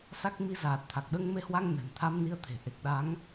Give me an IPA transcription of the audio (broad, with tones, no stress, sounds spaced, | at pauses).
s a˦˥ k̚ m i˧ z aː˨˩ t̚ t̪ʰ a˨˩ k̚ ɗ əː˧ ŋ m e˧ h w a˧ ŋ n ɛ̤˨˩ n t̪ʰ a˧ m n i˧ ə̯ t̪ʰ e̤˨˩ ʔ e˨˩ k̚ ɗ a˨˦ ŋ